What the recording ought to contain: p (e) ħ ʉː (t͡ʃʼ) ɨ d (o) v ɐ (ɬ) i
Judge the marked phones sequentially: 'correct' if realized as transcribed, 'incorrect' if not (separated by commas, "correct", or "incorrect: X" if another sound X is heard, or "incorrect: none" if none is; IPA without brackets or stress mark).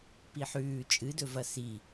incorrect: i, correct, incorrect: ɵ, incorrect: s